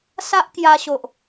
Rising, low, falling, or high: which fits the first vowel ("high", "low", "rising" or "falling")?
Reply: high